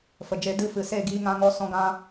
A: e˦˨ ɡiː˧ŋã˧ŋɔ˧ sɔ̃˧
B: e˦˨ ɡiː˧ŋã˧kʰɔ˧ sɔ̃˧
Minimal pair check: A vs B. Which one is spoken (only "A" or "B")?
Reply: A